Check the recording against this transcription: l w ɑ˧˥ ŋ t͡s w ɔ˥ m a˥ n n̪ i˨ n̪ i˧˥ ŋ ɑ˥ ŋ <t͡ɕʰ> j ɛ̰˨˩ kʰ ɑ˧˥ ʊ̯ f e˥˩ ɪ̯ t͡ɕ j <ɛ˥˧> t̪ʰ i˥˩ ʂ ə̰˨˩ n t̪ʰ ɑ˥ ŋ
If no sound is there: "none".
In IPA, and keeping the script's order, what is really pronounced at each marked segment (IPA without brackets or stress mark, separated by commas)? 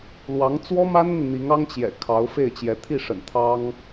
t͡ɕ, ɛ˧˥